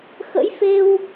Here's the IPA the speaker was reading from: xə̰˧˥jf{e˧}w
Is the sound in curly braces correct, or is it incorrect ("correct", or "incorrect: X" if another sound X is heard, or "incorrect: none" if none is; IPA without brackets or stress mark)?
correct